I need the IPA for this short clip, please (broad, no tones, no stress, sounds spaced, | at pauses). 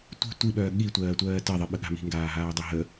tʷ i̤ tʷ i ɓ œː ɠ i tʷ ɜː tʷ ɜː t ɜ ðˤ i ɓ ə ɠ a̤ m i̤ ŋ ɡ aː ɦ aː dˤ œ ɦ ə